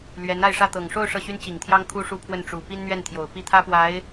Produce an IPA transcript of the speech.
l ɥ ɛ˧˥ n a˥˧ ɪ̯ ʂ ä˥˩ t̪ ɤ˨˩ ŋ ʂ o˥˧ ʊ̯ ʂ ɤ˥˩ ɕ y˥ n t͡ɕ i˨˩ ŋ t̪ʰ j ɑ˥ ŋ kʰ u˥ ʂ u˥˧ pʰ w ə˥˩ n ʈ͡ʂ u˨˩ p i˥ n n̪ ɥ ɛ˥˩ n t̪ʰ j o˨˩ ʊ̯ p i˥˩ t̪ʰ ä˥ p w a˧˥ ɪ̯

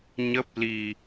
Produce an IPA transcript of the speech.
ɲ ə˦˥ p̚ l i˧

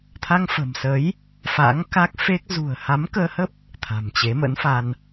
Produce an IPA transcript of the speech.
t̪ʰ a˧ ŋ f ə̤˨˩ m s ə˨˦ j | f a̰˧˥ ŋ k a˦˥ k̚ f e˦˥ k̚ z ṳ˨˩ ə̯ h a˨˦ m k əː˧ h ə˦˥ p̚ | t̪ʰ a̤˨˩ m t͡ɕ e˨˦ m ə̰˧˥ n f a˧ n

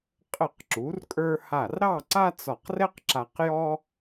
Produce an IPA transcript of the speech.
qʼ ə˧˩ q ǁ u˩˧ r kʼ ə˞˧ h a˧˩ r ɾ ɑ˥˧ ǀ a˥ t͡s ɒ˧˩ q r ɛ˥ q ǁ a˧ q j ɔ˥

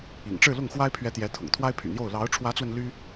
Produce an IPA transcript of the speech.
ḭ˨˩ ŋ ʈ͡ʂ ɻ̩˥˧ l ʊ˥˩ ŋ x w a˥ ɪ̯ pʰ ɥ ɛ˧˥ t̪ j ɛ˧˥ t̪ʰ ʊ̰˨˩ ŋ t̪ʰ w a˥ ɪ̯ pʰ y̰˨˩ n̪ j o˥˩ ʊ̯ l ɑ˧˥ ʊ̯ ʈ͡ʂʰ w ä˧˥ t͡s w ə˧ n l y˥

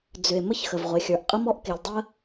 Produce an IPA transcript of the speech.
d͡z ʏ˩ e̯ m ə˥ ç x ə˩ v ʁʷ e˩ xʲ ə˞˩ ʔ qʼ ə˥ m ɔ˥ ʔ k e˩ lʲ dˤ ə˥

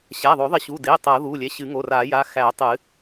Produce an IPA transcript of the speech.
ɕ æ˩˧˩ ðˤ o˨˩˦ ðˤ ɪ˨˩˦ ɕ u˩˧˩ d e˩˧˩ tˤ ɤ˨˩˦ ð u˩˧˩ lʲ ɛ˩˧˩ ɕ ɨ˨˩˦ ŋ o˩˧˩ r a˨˩˦ j a˩˧˩ x æ˨˩˦ tˤ ɨ˨˩˦

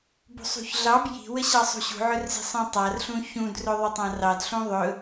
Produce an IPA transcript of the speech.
b ṳ sˤ ṳ ç ɮ ɑ b j i̤ w ə ɕ ɑ sˤ ṳ ɕ ṳ ʕ ɵ r z i̤ sˤ ĩ tˤ a r ɬ ũ ç ũ d r ɵ ðˤ ɵ tˤ ã r ɑ d ɬ ũ ðˤ ɵ

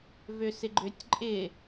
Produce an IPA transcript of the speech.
v ø s ɪ ɡ͡ǃ ʏ tʲ ǃʼ ɪ

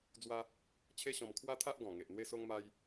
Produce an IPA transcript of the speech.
d͡z w a˦ | t͡ɕʰ e˦ ɕ ɔ̃˧ m kʰ w a˦ t̪ʰ a˦ ʔ ɡ ɔ̃˨˩ ŋ e˨ ʔ n̪ w e˦ s o˦ ŋ m a˦ j

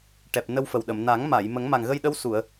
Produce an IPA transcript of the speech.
ʈ ɛ˨˩ p̚ n ə˧ w f ə˨˩ w ɗ ə˨˩˨ m n a˨˩˦ ŋ m a˨˩˨ j m ə˨˩˦ ŋ m a˨˩ ŋ ɣ ə˧ j ɗ ə˧˥ w s u˨˩˨ ə̯

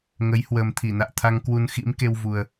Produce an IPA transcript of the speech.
ŋ ə˨˦ j h w əː˨˩ m t̪ʰ i˧˩ n a̰ː˧˨ t̪ʰ a˧ ŋ k w u˧ n x ḭ˧˥ m k e˧ w v u˨˩ ə̯

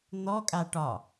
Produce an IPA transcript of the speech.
n̪ ɔ kʼ a ʈ ɒ

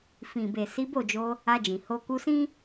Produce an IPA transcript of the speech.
f ĩ˨ b e˨ s i˨˦ b o˦˨ d͡ʒ o˧ | a˧ d͡ʒ ĩ˨ h o˧ k u˧ s ĩ˦

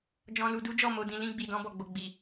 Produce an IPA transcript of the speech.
d͡ʒ ɔ̃˧ l u˧ d u˦ d͡ʒ ɔ˦˨ m o˧ d ĩ˧ l ĩ˧ ɡ͡b i˨ d ɔ̃˧ b ɔ˨ ɡ͡b o˨ ɡ͡b i˨

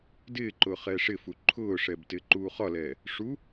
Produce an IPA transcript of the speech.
d ɪː ǃ ʊː χ ɛː ʂ ɪ f u ǃʰ ʊː ʂ ɛ b t ɪː ǃ uː χ ɒ l ɛː | ʂ u

